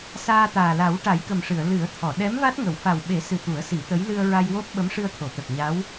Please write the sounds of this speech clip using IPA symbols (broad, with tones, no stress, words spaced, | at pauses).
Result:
saː˧t̪aː˨˩la˨˩˦w ʈa˨˩˦jkə˨˩mʂɨ˨˩˨ə̯ lɨ˨˩˦ə̯t̪ʰɔ˨˩˨ ɗɛ˧˥m va˦˥t̚ŋə˨˩˨w fa˨˩wɓe˨˩˦sɨ˨˩ t̪u˨˩˦ə̯si˨˩˦t̪ə˧˥j lɨ˧ə̯ ɹa˧jwo˦˥p̚ ɓə˧˥mʂɨ˧ə̯t̪ʰo˨˩˨t̪ə˨˩k̚ ɲa˧˥w